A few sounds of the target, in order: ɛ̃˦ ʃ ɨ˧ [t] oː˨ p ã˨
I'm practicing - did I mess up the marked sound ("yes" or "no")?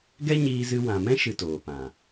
no